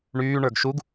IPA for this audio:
ɳyːɳə˞ɡ ʃuɡ

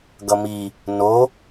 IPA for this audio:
ɡʌmi | no

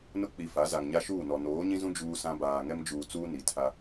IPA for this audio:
nʊ˦k͡pi˨ fa˨˦ za˨ŋɲa˦ʃuː˦˨nɔ˨ noː˨˦ɲĩ˦zũ˦ d͡ʒuː˦sã˦baː˨ ŋɛ˦md͡ʒuː˨t͡suː˦ ni˨ tʰa˦

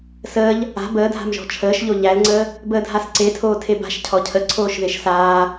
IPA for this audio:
səːʎ | a̤ bəːdʱa̤mʒɔ̤ t͡ʃʰəːʃʎo ʎælŋ͡ǀəː | bəːdʱasǀe tʰoːtʰeba̤ʃ cʰɔcʰəǀʰoːʃ ðeʃsaː

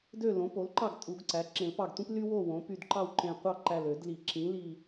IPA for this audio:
dø˥˨ lõ˩˥po˩˥lǃɑ˥˨ɡ tʼu˨˩˦ɡǀæ˩˥ ǁẽ˨˩˦lpɑ˧˩ɡtʷĩ˥p ly˥wo˥˨ wõ˩˥ py˧˩dǃɑ˥˨wǃẽ˧˩ qʷɑ˥˨ ǃæ˧˩l ø˨˩˦dli˨˩˦ ǁĩ˩˥ li˧˩

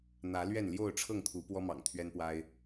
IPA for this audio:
n̪ä˨˦lɥɛ˥˨n ljo˥˨ʊ̯ʈ͡ʂʰɤ˥˨ŋt̪ʰu˨˦ pwɔ˦mɑ̰˨˩ŋt̪ʰɥɛ˦npwa˦ɪ̯

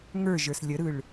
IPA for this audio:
ŋə˞ʒə˞s lʲəɾɯɭ

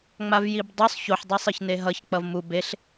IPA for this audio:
ŋ͡mavjibdˤosˤ çoħ dˤʌsˤɯçneɦʌç k͡pʌvmu beɬ

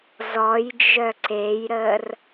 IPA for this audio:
zɔjd͡ʒœ ǀejɾər

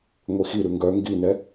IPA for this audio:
ŋʷixiɾʉ ŋɡœ ŋɡinɛ

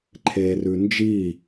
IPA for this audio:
ǃʰeːrʉnd͡ʒiː

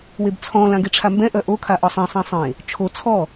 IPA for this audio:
webt͡sʰɔ̃ lãɡeʈ͡ʂʰambɛ̃ ʔœʔo kʰaʔɔsˤẽ sˤɛ̃sˤẽ | t͡ʃʰo t͡sʰɔ

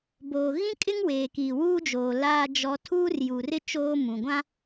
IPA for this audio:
boː˨ ɣĩ˦kʼɪ˦ŋ weː˨kiː˨ wuː˦d͡ʒoː˨ laː˦d͡ʒɔ˦ tʰuː˦rju˨rɪ˦ t͡ʃoː˦mũ˨ɡʷã˦

